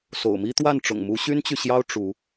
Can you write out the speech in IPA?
s o̰˨˩ ʊ̯ m i˦ t̪ w a˥˨ n ʈ͡ʂ ʊ̰˨˩ ŋ m u˨˦ ɕ y˦ n t͡ɕ y˨ ɕ j ɑ˦ ʊ̯ ʈ͡ʂ u˨˦

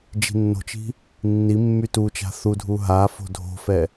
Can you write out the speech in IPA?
d͡ʒ i̤ nː o̤ t͡ʃ i̤ | nː i mː y t u t͡ʃ a̤ θ u dʱ u ɦ a f o̤ dʱ o̤ f ɛ

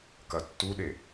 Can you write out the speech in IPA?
k ɐ tː u ɗ e

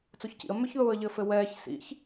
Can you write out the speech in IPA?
t͡s o ç c ḭ ə̯ m ʏ ç ð ʊː ə̯ ʎ ɘ f ɘ w ɛː ç s ḭ ç

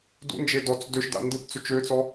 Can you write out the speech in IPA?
d ṵ n d͡ʒ e d ɔ t͡s d ø ʃ d a̰ n d ɯ p t͡s ɵ t͡ʃ ø t͡s ɔ

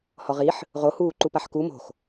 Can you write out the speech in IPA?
h ɔ ʁ i ħ | ʁ o h uː ǃ u p a ħ k u m o̤ x

